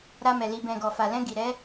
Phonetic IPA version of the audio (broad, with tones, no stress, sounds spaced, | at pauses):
ɾ a˧ m ɛ˨ l i˨ b ɛ̃˨ ɡ ɔ˨ f a˨ l ɛ̃˧ ɡ i˨ ɾ ɛ˨˦